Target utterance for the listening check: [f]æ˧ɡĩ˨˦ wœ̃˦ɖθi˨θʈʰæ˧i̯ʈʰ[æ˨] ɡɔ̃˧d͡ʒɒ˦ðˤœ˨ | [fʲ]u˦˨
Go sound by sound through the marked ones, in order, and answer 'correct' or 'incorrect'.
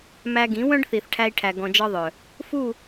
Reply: incorrect: m, correct, incorrect: f

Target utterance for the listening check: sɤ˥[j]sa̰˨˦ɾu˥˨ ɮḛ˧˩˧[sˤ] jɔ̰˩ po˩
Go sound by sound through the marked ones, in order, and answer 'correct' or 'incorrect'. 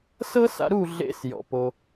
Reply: incorrect: none, incorrect: s

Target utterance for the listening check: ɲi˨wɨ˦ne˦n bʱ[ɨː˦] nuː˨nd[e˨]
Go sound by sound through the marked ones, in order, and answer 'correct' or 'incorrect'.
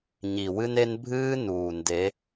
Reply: correct, incorrect: e˨˦

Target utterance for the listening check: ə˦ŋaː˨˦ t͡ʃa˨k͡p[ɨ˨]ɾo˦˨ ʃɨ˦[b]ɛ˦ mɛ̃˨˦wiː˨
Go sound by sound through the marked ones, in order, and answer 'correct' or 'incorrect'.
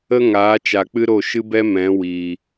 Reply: incorrect: ɨ˦, correct

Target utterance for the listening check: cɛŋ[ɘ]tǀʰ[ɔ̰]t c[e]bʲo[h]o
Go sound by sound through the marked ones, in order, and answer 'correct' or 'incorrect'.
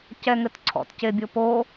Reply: correct, correct, correct, incorrect: p

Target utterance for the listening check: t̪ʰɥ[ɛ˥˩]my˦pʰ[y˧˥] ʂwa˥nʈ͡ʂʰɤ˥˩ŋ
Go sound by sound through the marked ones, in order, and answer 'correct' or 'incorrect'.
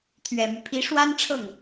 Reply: incorrect: ɛ˨˩, incorrect: i˧˥

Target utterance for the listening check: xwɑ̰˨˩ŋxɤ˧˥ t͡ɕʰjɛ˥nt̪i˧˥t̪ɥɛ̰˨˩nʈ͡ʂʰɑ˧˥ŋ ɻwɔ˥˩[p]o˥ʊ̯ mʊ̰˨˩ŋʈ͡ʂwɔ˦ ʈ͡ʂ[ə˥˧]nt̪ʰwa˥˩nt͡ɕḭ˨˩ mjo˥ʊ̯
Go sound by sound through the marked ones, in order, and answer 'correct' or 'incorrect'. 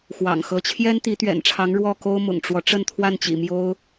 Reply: incorrect: k, correct

